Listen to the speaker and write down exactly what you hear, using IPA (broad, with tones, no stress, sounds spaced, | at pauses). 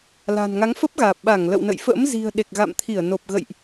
l a̤˨˩ n ŋ a˨˦ ŋ f ə˦˥ p̚ ɣ aː˨˩ p̚ ɓ a˧˩ ŋ l ə̰˧˨ w n ə̰˧˨ j f ə̰ː˧˥ m z i̤˨˩ ə̯ ɗ e˨˩ k̚ ɣ a̰˧˨ m t̪ʰ i˧˩ ə̯ n o˨˩ p̚ ɣ ə̰˧˨ j ʔ